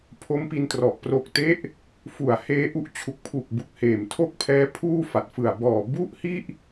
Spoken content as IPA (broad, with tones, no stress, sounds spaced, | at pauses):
pʰ o˦˥ m p i˧ n t r ɔ˨˩ ʔ p r o˨˩ k̚ t e˦˥ ʔ | f u˨˩ a̯ h eː˦˥ ʔ u˦˥ ʔ t͡ɕʰ u˨˩ k̚ pʰ u˨˩ k̚ b u˨˩ k̚ h eː˨˩ m tʰ o˥˩ k̚ pʰ ɛː˦˥ pʰ uː˥˩ f a˨˩ t̚ f ɯ˨˩ a̯ b ɔː˨˩ b u˥˩ ʔ h i˥˩ ʔ